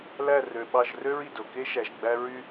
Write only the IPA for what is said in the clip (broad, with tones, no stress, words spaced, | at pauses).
læ˦˨rø˨ɓɑ˦˨ʒ rø˦ɹi˨do˨ke˦ ʃæ˨ʒɡ͡bæ˦ ɹy˦